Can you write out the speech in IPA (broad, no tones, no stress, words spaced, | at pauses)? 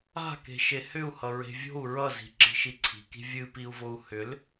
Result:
a̤ ke̤ʃehʏu̯hʌ ɹe̤vʲo̤u̯ ɹʌzi̤ǁi̤ ʃiǀʰi̤ki̤ vʲɨpiu̯vou̯ hʏl